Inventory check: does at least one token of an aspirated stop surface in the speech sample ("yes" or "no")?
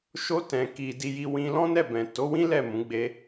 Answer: no